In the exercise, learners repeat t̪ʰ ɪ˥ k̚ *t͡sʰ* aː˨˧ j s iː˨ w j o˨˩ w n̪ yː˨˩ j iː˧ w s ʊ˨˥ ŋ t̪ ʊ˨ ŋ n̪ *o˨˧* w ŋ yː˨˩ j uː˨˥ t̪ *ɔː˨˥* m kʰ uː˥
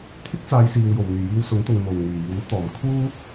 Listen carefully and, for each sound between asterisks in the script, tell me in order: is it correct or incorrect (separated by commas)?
incorrect, incorrect, incorrect